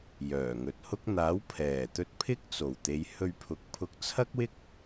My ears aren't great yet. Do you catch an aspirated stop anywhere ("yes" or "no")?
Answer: yes